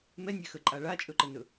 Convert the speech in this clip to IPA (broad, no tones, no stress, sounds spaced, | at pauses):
m ɛ nʲ ɛ x ə ǃʼ a ɭ a t͡ʃʼ ɵ ǃ ə n ɵ